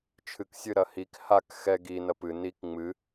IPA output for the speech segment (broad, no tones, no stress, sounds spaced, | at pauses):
t͡ʃʰ ɨ k sʲ ɨ ɾ ɐ h i k h a k x ɛ ɡ i n ɐ p ɨ n i k ŋ͡m ɨ